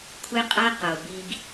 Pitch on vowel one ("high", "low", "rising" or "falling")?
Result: high